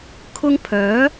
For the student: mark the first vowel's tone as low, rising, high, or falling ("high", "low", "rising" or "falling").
high